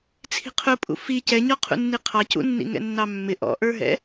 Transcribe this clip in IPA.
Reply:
t͡sʰ i̤ qʰ ʊ pʼ ṵ f i c ɛ ɲ ɔ qʰ ṵ nː i qʰ ɑ c ṵ nː ḭ ŋ ɛ̰ nː ɑ mː ɪ ʔ ɔ̰ ʔ ə˞ ɦ ɛ̰

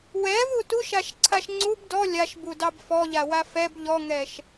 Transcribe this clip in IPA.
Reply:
w ɛ v u t u ʃ a ʃ ǀʰ a ʃ ŋ͡ǀ u b d ɔ lʲ a ʃ b u d ɑ b f ɔ ʎ a w a f ɛ b ʎ ɔ ŋ ɛ ʃ

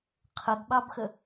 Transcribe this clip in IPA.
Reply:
qʰ ə ɡ ɓ ɑ b x ə

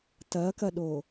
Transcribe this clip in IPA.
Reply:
t ɐ k ɐ ɗ o

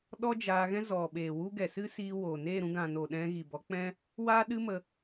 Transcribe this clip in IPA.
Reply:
ɗ ɔ˦ d͡ʒ aː˧ ɣ ɛ̃˦ z ɔ˨ ɓ eː˨ w u˦ ɡ ɛ˨ s ɨ˦ s iː˧ w oː˨ n eː˦˨ ɾ ũ˧ ɡ ã˨ n oː˨ ɗ ɛ̃˧ ɣ i˨ b ɔ˨˦ k͡p ɛ̃˦ | w aː˦ ɗ ɨ˦ m ə˧

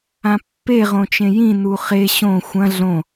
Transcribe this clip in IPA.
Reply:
ã pː e ʁ õ t͡ʃ ẽ j ĩ n u χ e ɕ õ xʷ ɐ̃ ɮ õ

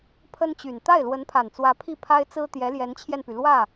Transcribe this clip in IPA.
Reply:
pʰ ə˥ n t͡ɕ y˨˩ n t̪ a˥˩ ɪ̯ l w ə˧˥ n pʰ a˨˩ n t͡s w ä˧˥ pʰ i˥˩ pʰ a˥ ɪ̯ t͡s ɹ̩˥ t̪ j ɛ˧˥ l j ɛ˧˥ n t͡ɕʰ j ɛ˧ n p y˩ l w ä˥˩

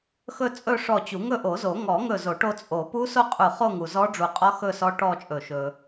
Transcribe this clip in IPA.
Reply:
x ɵ˥˧ t͡sʼ ɵ˥˧ ʂ ɔ˧˩ t͡ɕ u˨˩˦ ŋ ɵ˥˧ ʔ o˨˩˦ z o˨˩˦ ŋ ɔ˨˩˦ ŋ ɵ˧˩ z o˨˩˦ ʈ o˧ t͡sʼ o˨˩˦ p u˦˥ s o˥˧ qʼ u˧˩ χ o˥˧ ŋ u˧ z ɔ˦˥ ɖ͡ʐ u˧˩ qʼ ɔ˦˥ x ɵ˥˧ s ɔ˦˥ ʈ ɔ˥˧ t͡ʃʼ ɵ˧˩ ʃ ɵ˧

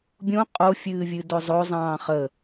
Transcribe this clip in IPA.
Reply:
bʲ õ qʼ o fʲ ɨː vʲ ɨ d o zˤ o zˤ ɑ̃ː χ ə

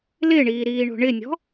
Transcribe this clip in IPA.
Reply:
l ɪ ɳ iː ɾ iː ɳ o̤ ɳ ɪ nʲ ɔ̤

